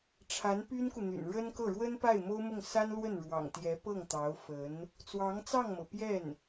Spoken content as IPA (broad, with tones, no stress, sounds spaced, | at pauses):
ʈ͡ʂʰ a˧˥ n p y˥ n k u˨ n̪ y̰˨˩ n ɻ ə˥ n k ɤ˥˩ ɻ w ə˥ n p a˥˩ ɪ̯ m o˥ ʊ̯ m ʊ˥˩ ŋ s a˥ n l w ə˥˩ n ɻ w ɑ̰˨˩ ŋ t̪ j ɛ˧˥ p ɤ˥˩ ŋ t̪ ɑ˧˥ ʊ̯ f ə˧˥ n | t͡s w ɑ˧˥ ŋ t͡s ɑ˥˩ ŋ m ɤ˩ p j ɛ˥˩ n